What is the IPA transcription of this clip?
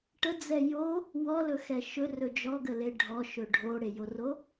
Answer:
ʈ ə d͡z ɛ j o | w ɔ l ɵ x ɛ ʃ ɵ r ɵ d͡ʒ ɔ ɡ ə l e ɖʱ ɔ ʃ ɵ ɖʱ o ɽ e j o r o

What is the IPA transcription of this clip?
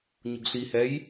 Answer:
ɲ ʊ ɡ ɬ i h ɛ j

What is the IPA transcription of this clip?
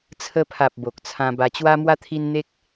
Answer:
t͡sʰ ə˧ pʰ a˨ p̚ b o˨ k̚ t͡sʰ ã˧ b a˧ t͡ɕ w a˧ m w a˧ t̪ʰ i˧ n n̪ e˦ k̚

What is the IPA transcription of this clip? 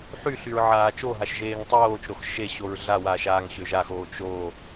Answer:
ħ y ɬ y ɹ ʕ aː t͡ʃ o ɦ a ʃ ʒ eː ŋ tˤ oː t͡ʃ ɾ o x ʃ e ɕ o ɹ ɮ a w aː ʃ aː ŋ ɕ ø ʒ a x oː t͡ʃ o

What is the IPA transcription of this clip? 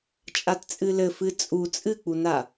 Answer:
t͡ʃʼ a t t͡sʼ ɨ l ɘ f ɨ t͡sʼ u t͡sʼ ɨ k͡p u n a

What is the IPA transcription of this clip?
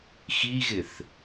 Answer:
x i ɣ ɪ θ

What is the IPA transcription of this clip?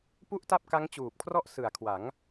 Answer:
p u˥˩ ʔ t a˥˩ p̚ k a˦˥ ŋ t͡ɕ uː˨˩ p̚ kʰ r ɔ˥˩ ʔ s ɯ˨˩ a̯ kʰ w a˩˦ ŋ

